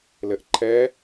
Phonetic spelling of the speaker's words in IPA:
lɘʔǃʰɛ

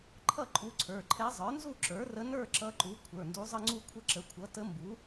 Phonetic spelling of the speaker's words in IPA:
ǃʰʌ˥˧ǃʼu˧˥ǀʰə˞˩˧˩ǃʰɛ˧˥ zˤə˞˩˥nzu˥˧ǁə˞˩˥rə˧˥ nə˞˥˧ ǁʌ˧˥ǃu˩˥ kʷʰə˞˩˧˩ndu˧˥zˤə˥˧ŋ͡ǀu˥˧ kʷʰə˧˥ǁə˩˧˩kʷʰʌ˩˥ tə˧˥mbu˩˥

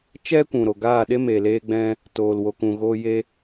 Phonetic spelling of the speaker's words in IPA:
t͡ʃɛ˦kʷũ˨ɾo˨ ɡaː˦˨ɗe˦ me˨leː˦ɡ͡bɛ̃˦ | toː˨lwo˨kũ˨ ɣoː˧je˦

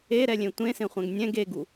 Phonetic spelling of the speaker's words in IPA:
eɾɛlʲẽ tʷẽsẽχʷɛ̃ɡ nʲɛ̃ɡ eɡu

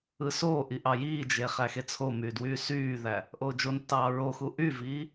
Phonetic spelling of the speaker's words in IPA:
ɯsoːʔi ʔɑjiːd͡ʒe χæxet͡sʰomyː dwyːsyːðæ | ʔoːd͡ʒontːɑː ɹoxu ʔyviː

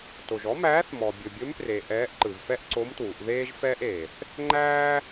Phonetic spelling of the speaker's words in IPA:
to˩ʒɔ˧˥mæː˧˥θ mɔ˩ bʲɵ˩bʲɵ˧˥mpre˩ ʔɛː˧˥ʔǃɯ˩vfɛ˥ʔ ǀo˧˥mtwu˩˧ʔ ðeː˥ʒfɛː˥ʔ eː˩θ | ŋ͡ǃæː˥

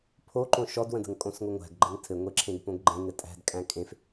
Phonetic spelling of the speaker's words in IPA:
pʰoǃõ ʃɔdwə̃də̤ŋ kʼõsŋʷɘŋʷæ̤ɡ ɡ͡ǃɘŋtʰɘŋʷeǁʰẽɡ põɡɡ͡ǃẽ ŋɘtʼæ̤d kʼæ̃kʼẽf

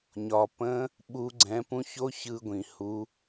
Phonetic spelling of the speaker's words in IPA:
ɲɒ˩ pə̃˧˥ | ɓu˩˧ɡ͡ǀɛ̃˩˧pũ˧ço˧˥ çɯ˧ɡʷĩ˩ hu˩˧

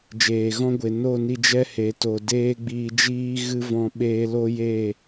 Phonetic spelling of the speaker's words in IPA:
d͡ʒeː˨ɣɔ̃˧ɡʷe˨ no˦˨ni˧d͡ʒɛ˦he˨ to˨ deː˦ɡ͡biː˧d͡ʒiː˦ ɣɨ˦vɔ̃˧ ɓeː˧ lo˦je˦˨

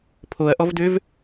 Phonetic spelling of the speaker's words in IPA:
pʰoɐ̯ʔɔvdøv

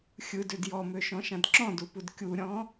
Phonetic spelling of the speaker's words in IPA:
xʲɯdød jɔmøʃɔ̃ʃãd ǁɔ̃dupud kʲuɾʲɔ̃

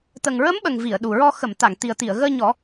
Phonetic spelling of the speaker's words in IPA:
t̪ə˨˩ŋɹə˧˥mɓə˨˩ŋ vi˨˩˨ə̯ɗu˨˩ɹɔ˧ xə˨˩˨mt̪a˨˩˨ŋ t̪i˨˩ə̯t̪i˨˩˨ə̯ɣəː˧ɲɔ˨˩˦

